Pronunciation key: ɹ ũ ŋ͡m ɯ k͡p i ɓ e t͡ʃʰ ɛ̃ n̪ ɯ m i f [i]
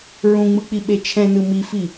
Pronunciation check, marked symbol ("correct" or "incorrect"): correct